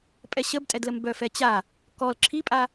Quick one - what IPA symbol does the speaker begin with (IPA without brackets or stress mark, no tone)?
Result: pʼ